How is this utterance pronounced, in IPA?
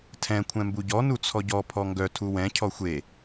tʰ ɛ̃ kʷʰ ɛ̃ m b u ɟ ɔ n u t͡sʰ ɔ ɟ ɔ pʰ ɔ ŋ ɡ œ tʰ u w ɛ̃ cʰ ɔ xʷ e

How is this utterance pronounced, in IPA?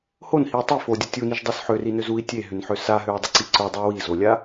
h o n h i u̯ tˤ i f o dʲ o tʲ u n i ʒ dˤ o s ħ ø r i n ø z u i̯ tʲ e ɦ ʏ n ħ ø s a ɦ ø u̯ dˤ ʏ ǀ i ǀ o dˤ u w i z o lʲ a

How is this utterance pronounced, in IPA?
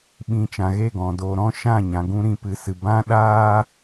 ɓ ĩ˧ t͡ʃ ã˨ ɣ e˦˨ ɡ ɔ̃˨ d o˨ ɾ ɔ̃˦ ʃ ã˦˨ ɲ ã˨ ɡ ũ˦ ɾ ĩ˧ p ɨ˨ s ɨ˨ b ã˦ ɗ aː˦

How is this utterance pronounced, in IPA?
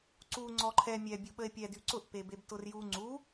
ǀ u ŋ͡ǀ ɔ ǃʰ ɛ mʲ ɛ bʲ u ɓ ə e̯ pʲ ɛ d y ǀ ʊ ʔ p e b e b t ʊ r j u ŋ͡ǀ u

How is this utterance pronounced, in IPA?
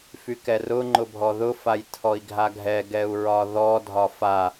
f y k ɛ r ʊ ŋ͡ǃ ʊ bʱ ɔ ð ʊ f a j tʰ ɔ i̯ ɡʱ a ɡʱ ɛ ɡ ɛ u̯ ɹ ɒ ð ɔ dʱ ɒ f a

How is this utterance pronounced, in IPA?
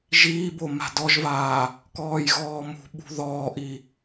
ʒ iː b o m a̤ d ɔ ʒ v aː | k ɔː j ɣ ɔː m ṳ ɓ ṳ ð ɔː ʔ i

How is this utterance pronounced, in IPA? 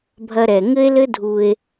bʱ ɐ˥ ɾ ɛ˧ ŋ ɘ˥ e̯ l ɘ˥ dʱ u˧ e̯

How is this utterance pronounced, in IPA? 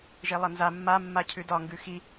ʒ e lˠ ʌ n z a mː a mː a cʰ ʉ d ɒ ŋ ɡ ʉ x i

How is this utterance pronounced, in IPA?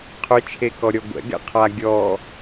qʰ ʏ t͡ʃʰ e k ɔ ɾʲ ɔ ɡʷ ɛ̰ ɡ ɛ̰ qʰ a ɡʲ ɔ

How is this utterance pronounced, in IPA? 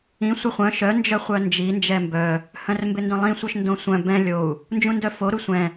ĩ sʷ ɪ χʷ œ̃ ʃ œ n d͡ʒ œ χʷ œ n d͡ʒ i n d͡ʒ ɛ m b œ | h œ̃ r m b ɪ n d œ̃ lˠ ĩ sʷ œ ʃ n d õ sʷ œ̃ b ɛ̃ lʲ o u̯ | n d͡ʒ ũ n d œ f o ɾ u sʷ ɛ̃

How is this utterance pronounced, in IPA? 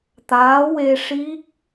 t̪ aː˧˥ w e˧ ʂ i˦˥ k̚

